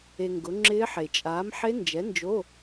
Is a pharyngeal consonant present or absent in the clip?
present